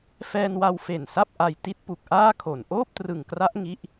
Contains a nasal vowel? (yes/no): no